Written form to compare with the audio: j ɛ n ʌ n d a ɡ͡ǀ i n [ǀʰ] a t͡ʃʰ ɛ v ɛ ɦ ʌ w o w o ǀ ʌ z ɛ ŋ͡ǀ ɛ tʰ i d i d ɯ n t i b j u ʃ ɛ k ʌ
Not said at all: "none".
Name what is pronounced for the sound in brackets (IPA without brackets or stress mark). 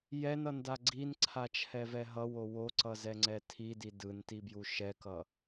ǀʰ